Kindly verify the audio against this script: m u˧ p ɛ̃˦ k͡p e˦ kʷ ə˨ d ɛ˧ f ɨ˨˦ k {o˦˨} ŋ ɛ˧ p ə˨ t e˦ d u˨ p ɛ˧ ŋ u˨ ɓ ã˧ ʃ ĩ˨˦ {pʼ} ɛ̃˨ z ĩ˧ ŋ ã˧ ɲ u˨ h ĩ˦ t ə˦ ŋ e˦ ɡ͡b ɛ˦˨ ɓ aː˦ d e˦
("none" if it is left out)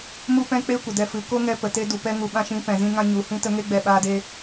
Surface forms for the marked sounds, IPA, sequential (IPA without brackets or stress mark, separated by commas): o˦, p